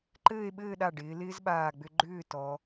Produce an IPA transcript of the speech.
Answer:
ǃɘː˥˧e̯ ɓɘː˥˧ɗa˧˩ ɖɪː˩˧lɪː˥zɓaː˧˩ɡ͡bʏ˧ ɡ͡ǃʏː˥˧tɔ˩˧

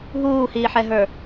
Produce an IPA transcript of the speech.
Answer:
ɦuːhiːħɛɦə˞

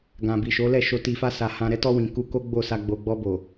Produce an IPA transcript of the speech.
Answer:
ɡã˨bi˨ ʃo˨˦lɛ˦˨ʃo˧ ti˨fa˧ sa˨ hã˧ ɾɛ˧tɔ˧ wĩ˨ku˧ ko˦ɡ͡bo˦˨sa˧ ɡ͡bo˨ɡ͡bɔ˧ bo˨

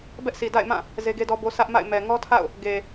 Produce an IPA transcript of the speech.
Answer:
bɛ˦ʔsʰi˨da̰˦˨ɪ̯mã˦˨ | ze˦ɡe˦dɔ˦bo˦ sʰä˦ʔma̰˦˨ɪ̯ mɛ˨ŋɔ˦tʰa̰˦˨ʊ̯ | ɡe˨

